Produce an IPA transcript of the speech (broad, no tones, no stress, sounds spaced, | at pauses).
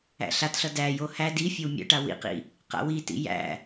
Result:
æ̰ ɬ a t ɬ ʌ d æ j o h æ d i fʲ o w mʲ a̰ ʈ a w ḭ q ḭ | q a̰ w i t ḭ j æ̰